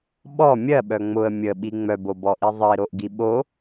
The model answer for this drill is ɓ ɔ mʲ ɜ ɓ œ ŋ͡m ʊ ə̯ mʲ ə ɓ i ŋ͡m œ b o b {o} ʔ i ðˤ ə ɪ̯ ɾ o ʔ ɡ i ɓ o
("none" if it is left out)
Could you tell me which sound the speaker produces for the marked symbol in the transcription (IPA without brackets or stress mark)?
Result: ɔ